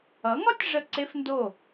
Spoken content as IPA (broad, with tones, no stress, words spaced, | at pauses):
ʌ˩˥ŋɒ˥tʲ ʐə˥˩ǀe˥fndo˥˩